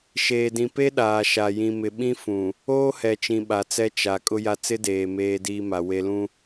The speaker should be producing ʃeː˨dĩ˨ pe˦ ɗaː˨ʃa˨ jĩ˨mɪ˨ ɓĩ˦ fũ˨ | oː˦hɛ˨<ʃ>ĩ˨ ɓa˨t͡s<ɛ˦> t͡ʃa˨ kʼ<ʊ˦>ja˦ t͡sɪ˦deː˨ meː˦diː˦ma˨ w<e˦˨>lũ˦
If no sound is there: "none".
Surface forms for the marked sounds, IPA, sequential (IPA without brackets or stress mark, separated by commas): t͡ʃ, ɛ˦, ʊ˦, e˦